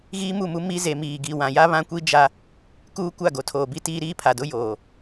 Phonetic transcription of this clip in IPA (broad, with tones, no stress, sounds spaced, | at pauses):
ɣ iː˦ m u˦˨ m u˦ m i˦ z e˨ m iː˨ ɡ i˨ w ã˨ j a˦ β ã˦ kʷ i˦ d͡ʒ a˦ | k uː˦ kʷ a˦˨ ɡ o˨ tʰ oː˨ b i˦ t iː˦ ɾ iː˦ pʰ a˨ d ʊ˦ j oː˨